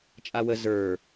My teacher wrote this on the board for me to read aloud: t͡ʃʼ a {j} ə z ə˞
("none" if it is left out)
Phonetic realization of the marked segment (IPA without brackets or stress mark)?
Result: w